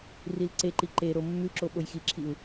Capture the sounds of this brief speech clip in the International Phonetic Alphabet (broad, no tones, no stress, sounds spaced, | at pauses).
r i l ǀ e ǃ i ǃ e ɾ o mː ʉ ǁ o ɓ o j x i ǁʰ i u̯